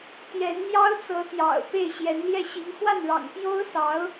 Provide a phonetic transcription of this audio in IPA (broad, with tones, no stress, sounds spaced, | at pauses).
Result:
t̪ j ɛ˧˥ n n̪ j ɑ˥ ʊ̯ t͡s ɤ˧˥ t̪ j ɑ̰˨˩ ʊ̯ p e˥˩ ɪ̯ ɕ j ɛ˧˥ n l j ɛ˥˩ ɕ i˧˥ ŋ x w a˥˩ n ɻ ɑ̰˨˩ ŋ p j o˥ ʊ̯ s ɑ˧˥ ʊ̯